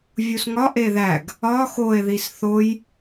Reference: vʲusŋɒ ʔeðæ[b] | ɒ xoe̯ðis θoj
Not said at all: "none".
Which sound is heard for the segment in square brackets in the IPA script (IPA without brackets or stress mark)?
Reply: ɡ